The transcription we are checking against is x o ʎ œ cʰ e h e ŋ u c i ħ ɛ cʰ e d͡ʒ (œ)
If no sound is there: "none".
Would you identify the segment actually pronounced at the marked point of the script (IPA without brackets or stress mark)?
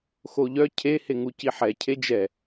ɛ